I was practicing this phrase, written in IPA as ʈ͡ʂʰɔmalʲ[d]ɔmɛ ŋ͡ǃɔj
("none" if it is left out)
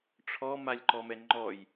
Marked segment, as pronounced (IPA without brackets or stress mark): ǃ